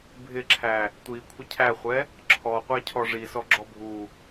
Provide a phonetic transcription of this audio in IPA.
bʱ ɪ ǁʰ æ | tʷ i kʷʰ ɪ cʰ æ χʷ ɛ | ǁʰ ɔ qʷ æ cʰ ɔ ʐ i s ɔ ɡ͡ǁ ɔ bʱ u

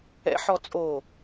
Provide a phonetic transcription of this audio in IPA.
ɛ̰ ħ ɔ t͡sʼ o

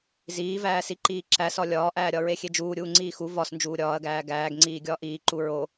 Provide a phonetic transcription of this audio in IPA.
z iː v æː s i ǃ iː ǁ æ s ɒ lʲ ɒː ʔ æː ɾʲ ɒ ɹ e xʲ e d͡ʒ uː ɾʲ uː ŋ͡ǀ iː x u v ɒ s n d͡ʒ uː ɾʲ ɒː ɐ̯ ɡ æː ɡ æː ɡ ŋ͡ǀ iː ɡʲ ɒː ʔ iː ǃ u ɹ o

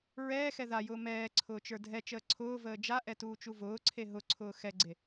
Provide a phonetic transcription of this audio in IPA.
ɹ ɛː x ɛ ð a j ʊː m ɛː ǀʰ ʊː t͡ʃ ə˞ dʱ ɛ t͡ʃ əː ǀʰ ʊː v əː d͡ʒ a ʔ ɛ t uː t͡ʃ u v ʊː ǀʰ e ɦ ʊ ǀʰ ʊː x ɛ ɡ͡ǀ e

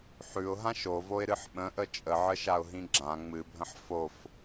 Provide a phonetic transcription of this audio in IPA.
ħ ʉ ʊ̯ ɦ ã ʃ o v o ɪ̯ ɾ ɨ ħ ɓ ə̃ ʔ ə t͡ʃʼ ə ʕ ə ʃ a ʊ̯ ɦ ĩ ɡ͡ǁ ã ŋ͡m ɨ bʱ ə̃ ħ f o f

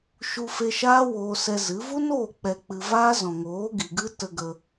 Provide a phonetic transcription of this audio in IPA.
ʃ u˧ f e˧ ʃ aː˦ w oː˧ s ɛ˧ z ɨ˨˦ v u˦ n oː˦˨ k͡p ɛ˧ k͡p ɨ˧ v aː˦ z ɔ̃˨ ŋ oː˨˦ ɡ i˨ ɡ ɨ˦ t ə˧ ɡ ə˧

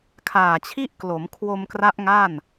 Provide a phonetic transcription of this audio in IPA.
kʰ aː˨˩ t͡ɕʰ i˥˩ ʔ k l o˩˦ m kʰ w o˧ m k r a˦˥ ʔ ŋ aː˥˩ n

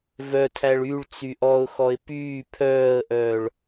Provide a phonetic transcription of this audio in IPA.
v œ tʰ æ ɭ y ɭ t͡s y ʔ ɔ ʊ̯ x ɔ ɪ̯ p yː pʰ œː ə̯ ʔ œː ɭ

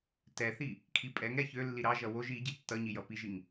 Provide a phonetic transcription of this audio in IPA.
t ɛ θ i | kʰ i pʼ ɛ ŋ ɾ ɛ ç ø lː i ɾ ɑ ʒ ʌ w o ʒ i ɟ i tː ʌ ɲ i j ʌ p i ʒ i ŋ

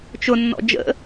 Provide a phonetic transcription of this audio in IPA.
t͡ʃ ʊ nː ɔ̰ d͡ʒ ə̰

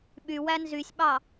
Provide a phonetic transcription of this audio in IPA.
ɓ y w æ n z y sʲ ɓ ɑ

